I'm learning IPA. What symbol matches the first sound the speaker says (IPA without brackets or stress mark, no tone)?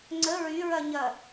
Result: ŋ͡ǀ